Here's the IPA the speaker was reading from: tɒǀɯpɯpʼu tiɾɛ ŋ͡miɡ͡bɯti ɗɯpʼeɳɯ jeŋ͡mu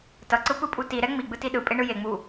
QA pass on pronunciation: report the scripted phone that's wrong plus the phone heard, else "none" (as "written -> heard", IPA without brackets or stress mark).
ɒ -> ʌ